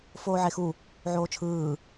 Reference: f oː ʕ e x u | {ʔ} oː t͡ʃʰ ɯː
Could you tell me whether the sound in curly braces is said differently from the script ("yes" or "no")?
yes